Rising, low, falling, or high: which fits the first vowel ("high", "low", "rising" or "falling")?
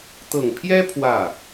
low